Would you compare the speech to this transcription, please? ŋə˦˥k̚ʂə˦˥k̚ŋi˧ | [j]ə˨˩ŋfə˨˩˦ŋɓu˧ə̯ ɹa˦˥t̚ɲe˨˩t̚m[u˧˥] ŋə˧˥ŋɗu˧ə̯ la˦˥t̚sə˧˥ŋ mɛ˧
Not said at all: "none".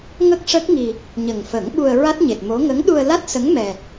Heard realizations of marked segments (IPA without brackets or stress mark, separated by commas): ɲ, o˧˥